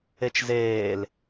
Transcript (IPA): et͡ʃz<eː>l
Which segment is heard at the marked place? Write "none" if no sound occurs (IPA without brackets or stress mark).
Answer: eː